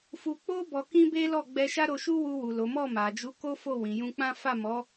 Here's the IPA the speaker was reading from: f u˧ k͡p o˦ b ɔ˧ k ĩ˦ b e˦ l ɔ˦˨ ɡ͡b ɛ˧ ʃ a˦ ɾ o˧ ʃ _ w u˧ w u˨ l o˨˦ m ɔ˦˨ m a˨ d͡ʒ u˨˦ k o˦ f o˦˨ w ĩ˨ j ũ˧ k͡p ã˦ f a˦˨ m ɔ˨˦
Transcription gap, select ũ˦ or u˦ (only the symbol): u˦